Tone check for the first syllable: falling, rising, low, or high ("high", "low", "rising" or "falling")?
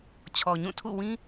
low